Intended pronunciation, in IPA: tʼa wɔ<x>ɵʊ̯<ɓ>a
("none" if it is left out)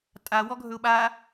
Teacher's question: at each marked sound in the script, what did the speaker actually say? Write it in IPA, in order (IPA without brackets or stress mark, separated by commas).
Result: ɡʱ, ɓ